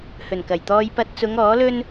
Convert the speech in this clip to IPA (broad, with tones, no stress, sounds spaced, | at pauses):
h ɵ˨˩ n k ɐ˨˩ j t̪ ɔː˧ j p ɐ˧ t̚ t͡s ʊ˨˧ ŋ ɔː˨˥ l ɵ˥ n